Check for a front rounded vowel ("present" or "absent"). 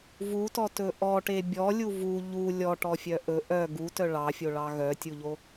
present